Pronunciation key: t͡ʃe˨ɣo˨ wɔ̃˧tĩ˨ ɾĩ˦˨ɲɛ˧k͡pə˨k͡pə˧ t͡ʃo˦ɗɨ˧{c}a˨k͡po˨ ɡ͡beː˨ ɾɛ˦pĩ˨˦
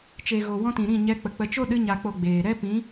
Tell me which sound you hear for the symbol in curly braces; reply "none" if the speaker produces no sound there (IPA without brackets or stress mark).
ɲ